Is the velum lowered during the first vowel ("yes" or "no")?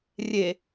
no